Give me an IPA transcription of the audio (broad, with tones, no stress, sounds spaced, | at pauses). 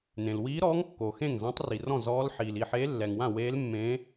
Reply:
n ẽ˩ l w iː˧˥ ɾ ɔː˧˥ ŋ kː o˩ x ẽ˥˩ ŋ z ã˧˥ tˤ r i˩ r ɔ̃˥˩ z ɔː˧˥ l ħ iː˩ l i˥˩ ħ eː˧˥ lː ɛ˩ ŋ w ã˥˩ w eː˧˥ l mː ẽː˧˥